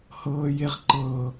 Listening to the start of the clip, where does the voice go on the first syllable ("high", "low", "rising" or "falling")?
high